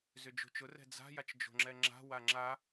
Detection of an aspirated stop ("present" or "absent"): absent